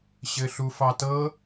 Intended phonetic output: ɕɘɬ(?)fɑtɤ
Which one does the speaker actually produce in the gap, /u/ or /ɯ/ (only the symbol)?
u